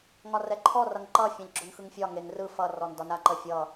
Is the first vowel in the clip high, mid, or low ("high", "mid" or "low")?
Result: low